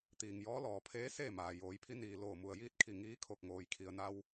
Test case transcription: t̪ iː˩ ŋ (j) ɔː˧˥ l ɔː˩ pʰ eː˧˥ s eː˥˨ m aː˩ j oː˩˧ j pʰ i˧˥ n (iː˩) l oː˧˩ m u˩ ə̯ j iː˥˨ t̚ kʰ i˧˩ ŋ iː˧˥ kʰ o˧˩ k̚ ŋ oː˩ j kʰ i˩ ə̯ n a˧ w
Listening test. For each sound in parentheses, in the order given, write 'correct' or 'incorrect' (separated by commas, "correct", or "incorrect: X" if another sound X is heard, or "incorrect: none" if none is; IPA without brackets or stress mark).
correct, correct